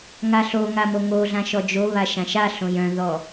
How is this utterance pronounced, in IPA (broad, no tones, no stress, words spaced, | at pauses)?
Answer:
ŋaɬoŋa moŋoɮã ʃɔd͡ʒoβa ʃãʃaɬõj œ̃ðɔ